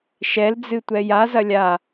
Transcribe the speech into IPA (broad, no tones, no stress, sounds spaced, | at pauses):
ʃ ɛ l d͡z ɨ tʷ ɛ j a z ɐ lʲ a